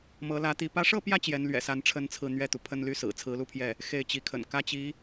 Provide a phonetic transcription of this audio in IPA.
mɤ˧˥lä˧˥t̪i˧˥ pä˧˥ʂɤ˥˧pjä˥˩ t͡ɕjɛ˧˥nlɥɛ̰˨˩sa˧˥n ʈ͡ʂʰə˥nt͡sʰɹ̩˥˧ n̪ɥɛ˥˩t̪u˩ pʰə˥˧nly˥˩ sɹ̩˨˩t͡sʰɹ̩˧˥lu˥˧pʰjɛ˥˩ | xe˥˩ɪ̯t͡ɕi˧˥kʰə̰˨˩n kä˥t͡ɕi˧˥

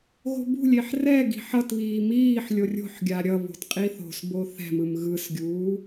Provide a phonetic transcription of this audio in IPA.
ɣo̤bṳlʲeħ rɛ ɡi̤ħʌtβiː miːħ lʲorʲo̤ħɡʲa ɾʲʌβo̤t qʼiθo̤sbo θɛ̤mɯm ɣɯsɡʲuː

